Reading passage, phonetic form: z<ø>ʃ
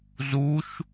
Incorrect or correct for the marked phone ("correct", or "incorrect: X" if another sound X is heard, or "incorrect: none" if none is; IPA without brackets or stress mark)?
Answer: incorrect: u